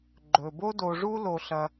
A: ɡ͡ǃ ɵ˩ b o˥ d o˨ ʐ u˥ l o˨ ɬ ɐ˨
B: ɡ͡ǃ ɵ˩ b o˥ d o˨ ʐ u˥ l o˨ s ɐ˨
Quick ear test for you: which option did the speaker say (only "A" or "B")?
A